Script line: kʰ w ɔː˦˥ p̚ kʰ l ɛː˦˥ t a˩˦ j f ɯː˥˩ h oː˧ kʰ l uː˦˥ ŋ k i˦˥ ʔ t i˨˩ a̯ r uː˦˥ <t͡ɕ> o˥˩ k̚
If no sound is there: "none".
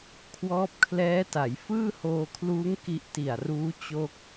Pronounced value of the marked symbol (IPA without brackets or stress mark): t͡ɕ